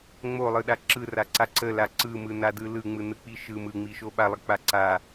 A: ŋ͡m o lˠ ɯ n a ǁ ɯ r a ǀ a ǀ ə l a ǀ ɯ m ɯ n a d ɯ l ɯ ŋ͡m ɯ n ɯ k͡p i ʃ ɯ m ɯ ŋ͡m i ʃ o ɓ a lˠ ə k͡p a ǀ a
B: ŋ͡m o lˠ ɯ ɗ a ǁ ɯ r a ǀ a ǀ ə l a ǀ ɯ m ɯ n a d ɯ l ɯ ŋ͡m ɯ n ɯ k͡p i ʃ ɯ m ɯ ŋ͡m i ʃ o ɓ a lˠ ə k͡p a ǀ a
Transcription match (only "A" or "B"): B